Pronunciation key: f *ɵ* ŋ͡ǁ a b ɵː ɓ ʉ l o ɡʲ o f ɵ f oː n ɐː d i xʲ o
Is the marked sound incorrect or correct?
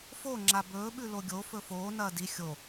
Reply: incorrect